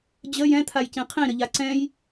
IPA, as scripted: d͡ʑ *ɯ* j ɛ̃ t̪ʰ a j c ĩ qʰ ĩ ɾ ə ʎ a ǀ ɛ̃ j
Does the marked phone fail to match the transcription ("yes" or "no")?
yes